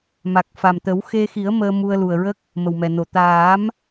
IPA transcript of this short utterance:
m a˨˩ k̚ f a˨˩ m t̪ ə˨˩˦ w x e˧ x i˨˩˦ ə̯ m əː˧ m u˧ ə̯ l u˨˩ ə̯ ɹ ə˦˥ k̚ | m ə˨˩ w m ɛ˨˩ n o˨˩ t̪ aː˨˩˦ m

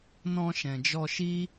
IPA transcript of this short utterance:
n ɔ̃˧ ʃ ɛ̃˨ d͡ʒ ɔ˧ ʃ i˦

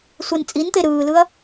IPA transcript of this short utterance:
sʷ ɛ n t͡sʼ i n t̪ e ɾ ɯː l ɯ ɐ̯

